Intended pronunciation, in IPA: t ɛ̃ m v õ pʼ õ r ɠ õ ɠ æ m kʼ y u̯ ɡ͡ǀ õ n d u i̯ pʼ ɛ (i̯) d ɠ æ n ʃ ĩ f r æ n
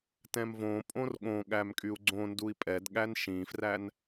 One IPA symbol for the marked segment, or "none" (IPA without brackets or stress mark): none